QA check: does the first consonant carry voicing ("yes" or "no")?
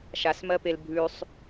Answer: no